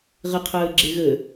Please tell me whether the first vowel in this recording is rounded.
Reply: no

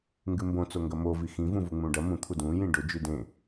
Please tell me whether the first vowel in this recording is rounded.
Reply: no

